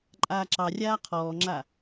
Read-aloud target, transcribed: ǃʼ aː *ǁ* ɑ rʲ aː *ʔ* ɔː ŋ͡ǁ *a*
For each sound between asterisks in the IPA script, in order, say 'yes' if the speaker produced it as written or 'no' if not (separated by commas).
yes, no, yes